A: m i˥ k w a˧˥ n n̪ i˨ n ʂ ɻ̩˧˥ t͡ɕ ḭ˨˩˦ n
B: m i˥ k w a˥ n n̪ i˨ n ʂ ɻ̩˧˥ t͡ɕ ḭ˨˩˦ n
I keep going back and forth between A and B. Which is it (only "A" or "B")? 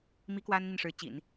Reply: B